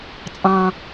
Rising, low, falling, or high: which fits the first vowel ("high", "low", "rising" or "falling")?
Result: low